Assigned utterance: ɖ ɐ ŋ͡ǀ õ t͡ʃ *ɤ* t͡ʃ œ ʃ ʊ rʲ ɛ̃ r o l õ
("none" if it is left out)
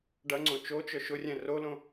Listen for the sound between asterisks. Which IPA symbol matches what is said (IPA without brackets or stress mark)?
o